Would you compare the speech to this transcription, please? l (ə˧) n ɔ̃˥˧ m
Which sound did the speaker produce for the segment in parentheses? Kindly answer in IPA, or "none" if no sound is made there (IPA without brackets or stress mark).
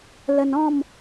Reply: ə˧